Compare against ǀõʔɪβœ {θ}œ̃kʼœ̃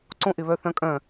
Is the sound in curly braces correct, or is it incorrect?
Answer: correct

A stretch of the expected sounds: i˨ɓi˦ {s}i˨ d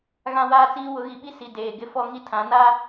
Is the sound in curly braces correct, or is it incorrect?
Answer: correct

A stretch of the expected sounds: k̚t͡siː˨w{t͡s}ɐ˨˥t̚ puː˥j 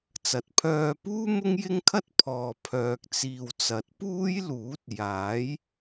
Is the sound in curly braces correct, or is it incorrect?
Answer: correct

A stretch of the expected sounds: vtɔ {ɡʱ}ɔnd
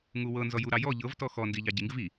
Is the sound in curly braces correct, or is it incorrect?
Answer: incorrect: x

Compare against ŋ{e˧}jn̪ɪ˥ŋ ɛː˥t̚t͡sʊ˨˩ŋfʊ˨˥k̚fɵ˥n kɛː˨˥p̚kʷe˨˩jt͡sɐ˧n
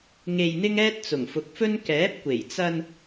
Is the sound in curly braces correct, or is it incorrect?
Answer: correct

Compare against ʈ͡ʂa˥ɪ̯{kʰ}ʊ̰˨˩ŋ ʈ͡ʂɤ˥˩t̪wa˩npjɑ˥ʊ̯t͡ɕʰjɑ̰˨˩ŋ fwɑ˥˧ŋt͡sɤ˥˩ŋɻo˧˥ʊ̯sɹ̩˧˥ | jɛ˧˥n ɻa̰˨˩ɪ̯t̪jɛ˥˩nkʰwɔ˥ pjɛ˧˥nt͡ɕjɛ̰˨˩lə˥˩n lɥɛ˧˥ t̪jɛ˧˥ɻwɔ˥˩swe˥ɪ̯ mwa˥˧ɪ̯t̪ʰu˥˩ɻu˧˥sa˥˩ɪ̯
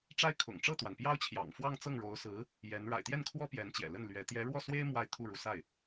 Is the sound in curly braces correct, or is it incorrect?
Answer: correct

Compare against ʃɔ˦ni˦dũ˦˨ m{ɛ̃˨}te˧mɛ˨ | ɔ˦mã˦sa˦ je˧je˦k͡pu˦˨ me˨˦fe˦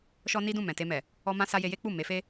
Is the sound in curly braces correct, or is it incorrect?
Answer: correct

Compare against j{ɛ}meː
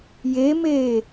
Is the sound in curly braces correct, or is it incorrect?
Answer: incorrect: e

